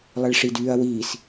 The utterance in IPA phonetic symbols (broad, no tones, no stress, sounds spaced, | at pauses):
lˠ ɛ ɭ ʂ i d yː ɐ̯ w iː s